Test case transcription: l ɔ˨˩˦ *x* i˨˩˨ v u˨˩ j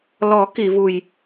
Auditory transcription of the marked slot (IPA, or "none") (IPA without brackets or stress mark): k